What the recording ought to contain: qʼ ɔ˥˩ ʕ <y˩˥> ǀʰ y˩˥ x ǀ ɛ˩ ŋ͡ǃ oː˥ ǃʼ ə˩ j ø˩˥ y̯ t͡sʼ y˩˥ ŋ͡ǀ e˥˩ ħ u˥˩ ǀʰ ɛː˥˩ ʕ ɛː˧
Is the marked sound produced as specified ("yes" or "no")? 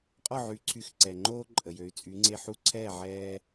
yes